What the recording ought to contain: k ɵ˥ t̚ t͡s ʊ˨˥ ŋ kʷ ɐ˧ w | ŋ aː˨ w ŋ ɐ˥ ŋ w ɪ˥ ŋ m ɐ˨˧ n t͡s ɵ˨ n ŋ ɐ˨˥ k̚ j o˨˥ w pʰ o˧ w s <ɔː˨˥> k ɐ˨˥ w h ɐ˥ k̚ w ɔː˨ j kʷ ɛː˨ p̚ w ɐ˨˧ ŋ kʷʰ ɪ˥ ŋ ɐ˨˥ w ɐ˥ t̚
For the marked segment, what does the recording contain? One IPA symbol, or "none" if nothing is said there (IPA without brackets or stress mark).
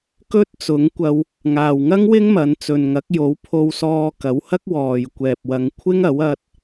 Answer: ɔː˧